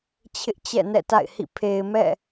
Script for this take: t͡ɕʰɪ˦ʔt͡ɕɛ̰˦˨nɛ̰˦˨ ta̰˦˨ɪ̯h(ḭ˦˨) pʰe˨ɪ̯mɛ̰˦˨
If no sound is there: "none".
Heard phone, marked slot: ḭ˦˨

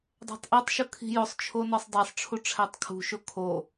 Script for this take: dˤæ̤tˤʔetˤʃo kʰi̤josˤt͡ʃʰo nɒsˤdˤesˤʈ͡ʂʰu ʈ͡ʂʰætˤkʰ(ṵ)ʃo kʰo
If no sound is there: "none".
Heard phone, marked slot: ṳ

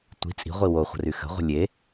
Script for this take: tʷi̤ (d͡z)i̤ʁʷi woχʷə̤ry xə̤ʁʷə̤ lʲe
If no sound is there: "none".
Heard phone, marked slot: t͡sʼ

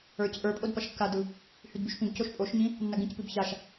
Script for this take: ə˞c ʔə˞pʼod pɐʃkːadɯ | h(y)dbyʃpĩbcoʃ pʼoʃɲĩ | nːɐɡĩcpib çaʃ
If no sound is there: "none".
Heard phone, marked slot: y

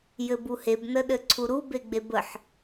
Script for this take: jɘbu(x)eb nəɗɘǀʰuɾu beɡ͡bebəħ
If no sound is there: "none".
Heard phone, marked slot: h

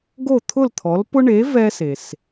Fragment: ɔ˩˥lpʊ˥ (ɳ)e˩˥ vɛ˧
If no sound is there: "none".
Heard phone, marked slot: ɳ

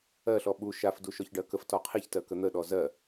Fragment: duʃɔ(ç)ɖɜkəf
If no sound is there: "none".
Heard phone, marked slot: ç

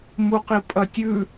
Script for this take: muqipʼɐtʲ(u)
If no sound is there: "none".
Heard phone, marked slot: ʉ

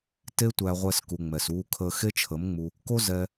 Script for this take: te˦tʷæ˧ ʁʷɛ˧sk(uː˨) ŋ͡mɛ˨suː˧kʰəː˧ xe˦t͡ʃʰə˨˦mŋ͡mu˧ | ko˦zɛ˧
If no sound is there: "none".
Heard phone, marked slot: u˨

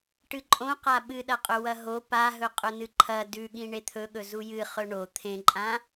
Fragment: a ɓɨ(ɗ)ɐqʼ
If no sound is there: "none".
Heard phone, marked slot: ɗ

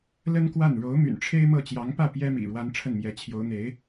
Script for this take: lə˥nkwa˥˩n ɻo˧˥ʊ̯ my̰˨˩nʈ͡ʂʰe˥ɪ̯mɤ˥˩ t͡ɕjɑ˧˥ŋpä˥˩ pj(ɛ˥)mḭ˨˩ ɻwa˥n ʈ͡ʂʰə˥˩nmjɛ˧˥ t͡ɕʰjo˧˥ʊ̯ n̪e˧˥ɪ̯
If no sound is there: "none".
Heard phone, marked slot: ɛ˥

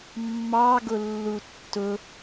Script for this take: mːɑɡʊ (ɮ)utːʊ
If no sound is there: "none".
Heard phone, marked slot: lː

